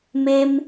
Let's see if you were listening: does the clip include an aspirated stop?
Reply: no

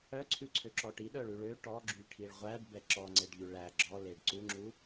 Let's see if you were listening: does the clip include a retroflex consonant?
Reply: yes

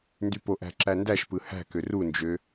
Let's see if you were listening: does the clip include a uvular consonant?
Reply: no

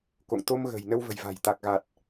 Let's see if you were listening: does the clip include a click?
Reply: no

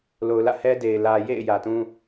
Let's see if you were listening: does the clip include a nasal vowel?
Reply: yes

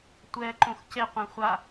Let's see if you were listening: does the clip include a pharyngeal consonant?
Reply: no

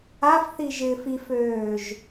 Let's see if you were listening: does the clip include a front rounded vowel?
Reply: yes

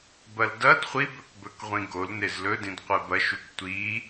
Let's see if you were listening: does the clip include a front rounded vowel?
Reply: no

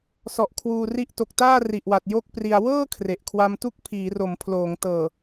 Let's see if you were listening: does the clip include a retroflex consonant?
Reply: no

